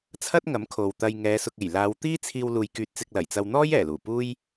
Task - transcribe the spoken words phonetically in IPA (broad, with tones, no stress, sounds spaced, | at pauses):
t͡sʰ ɐ˥ t̚ ŋ ɐ˨˥ m kʰ o˨ w t̪ ɐ˧ j ŋ ɛː˨˧ s ʊ˨ k̚ e˨˩ j l aː˨˧ w t̪ iː˥ t͡sʰ iː˧ w l uː˧ j k yː˧ t̚ t͡s ɪ˧ k̚ l ɐ˨˩ j t͡s ɐ˧ w n̪ ɔː˥ j ɛː˨˩ l uː˨˩ p uː˥ j